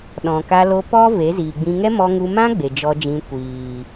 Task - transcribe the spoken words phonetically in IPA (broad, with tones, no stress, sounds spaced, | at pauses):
ɗ ɔ̃˨ k a˧ l o˧ p ɔ˦ v e˨˦ z iː˨ ɡ͡b ĩ˧ ŋ ɛ˦ m ɔ˧ ŋ u˧ m ã˦ ɡ͡b e˨ d͡ʒ ɔ˧ d͡ʒ ĩ˧ kʷ iː˨